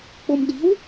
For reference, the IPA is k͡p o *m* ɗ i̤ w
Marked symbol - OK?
yes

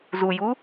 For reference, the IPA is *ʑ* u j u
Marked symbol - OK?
no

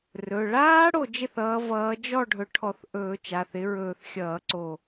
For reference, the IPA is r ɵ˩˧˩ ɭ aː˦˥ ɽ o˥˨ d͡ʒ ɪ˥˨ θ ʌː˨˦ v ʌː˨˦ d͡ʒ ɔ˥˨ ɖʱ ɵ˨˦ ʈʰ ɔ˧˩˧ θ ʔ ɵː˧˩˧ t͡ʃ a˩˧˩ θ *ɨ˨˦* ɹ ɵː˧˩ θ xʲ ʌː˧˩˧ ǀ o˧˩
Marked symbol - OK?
no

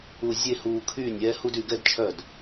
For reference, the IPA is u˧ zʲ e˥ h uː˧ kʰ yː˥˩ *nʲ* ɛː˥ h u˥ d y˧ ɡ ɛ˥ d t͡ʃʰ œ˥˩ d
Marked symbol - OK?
yes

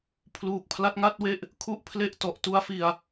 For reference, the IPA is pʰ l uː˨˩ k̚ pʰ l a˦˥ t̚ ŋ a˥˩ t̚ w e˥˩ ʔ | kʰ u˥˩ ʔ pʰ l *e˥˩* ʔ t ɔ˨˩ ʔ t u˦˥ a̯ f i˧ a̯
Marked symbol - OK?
yes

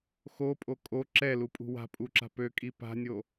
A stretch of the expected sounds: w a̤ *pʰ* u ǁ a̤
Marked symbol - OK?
no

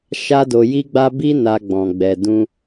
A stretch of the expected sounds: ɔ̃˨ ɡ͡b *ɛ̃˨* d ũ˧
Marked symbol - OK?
no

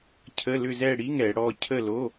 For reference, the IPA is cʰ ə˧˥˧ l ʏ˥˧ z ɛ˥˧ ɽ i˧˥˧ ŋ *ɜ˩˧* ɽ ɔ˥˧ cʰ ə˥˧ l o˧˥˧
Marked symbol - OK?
no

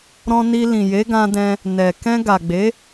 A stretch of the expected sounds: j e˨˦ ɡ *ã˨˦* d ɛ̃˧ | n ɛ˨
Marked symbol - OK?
no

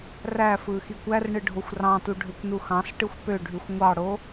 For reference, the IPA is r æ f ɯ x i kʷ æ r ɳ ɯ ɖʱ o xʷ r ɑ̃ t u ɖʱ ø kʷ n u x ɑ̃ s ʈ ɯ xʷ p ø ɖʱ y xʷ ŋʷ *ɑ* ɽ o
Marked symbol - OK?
yes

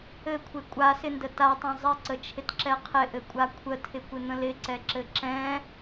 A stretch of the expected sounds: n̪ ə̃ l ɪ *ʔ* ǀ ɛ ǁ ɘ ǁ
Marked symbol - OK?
no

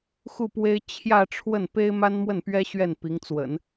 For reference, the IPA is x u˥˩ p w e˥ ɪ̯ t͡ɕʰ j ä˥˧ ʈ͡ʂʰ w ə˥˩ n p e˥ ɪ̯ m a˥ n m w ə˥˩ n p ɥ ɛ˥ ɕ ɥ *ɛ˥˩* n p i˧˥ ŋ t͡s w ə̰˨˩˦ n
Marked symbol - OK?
yes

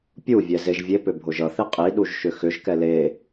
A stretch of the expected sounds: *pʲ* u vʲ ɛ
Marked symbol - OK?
yes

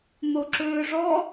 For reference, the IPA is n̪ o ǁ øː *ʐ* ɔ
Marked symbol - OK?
yes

